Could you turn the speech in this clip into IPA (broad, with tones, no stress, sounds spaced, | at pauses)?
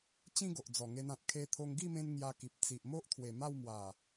t͡ɕ ĩ˦ ɡ o˨ ʔ d͡z ɔ˨˩ ŋ e˧ n ã˨ t̚ kʰ e˧ t̪ʰ o˧ ŋ ɡ i˥˧ m ẽ˧ n ŋ j a˧ k i˨ p̚ t͡s i˨ ʔ m o˦ ʔ t̪ʰ w e˨˩ m a˥˧ w m w a˨˩